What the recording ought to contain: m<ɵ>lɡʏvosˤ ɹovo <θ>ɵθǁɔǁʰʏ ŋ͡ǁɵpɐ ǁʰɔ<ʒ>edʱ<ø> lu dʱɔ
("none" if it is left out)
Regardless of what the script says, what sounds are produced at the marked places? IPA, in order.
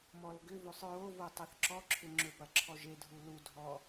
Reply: ɔ, tˤ, ʒ, u

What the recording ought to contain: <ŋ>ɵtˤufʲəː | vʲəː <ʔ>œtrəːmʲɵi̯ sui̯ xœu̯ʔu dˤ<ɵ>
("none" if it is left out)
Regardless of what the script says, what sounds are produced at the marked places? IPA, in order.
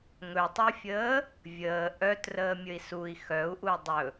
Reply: ŋ, ʔ, ɵ

